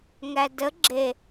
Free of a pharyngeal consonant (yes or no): yes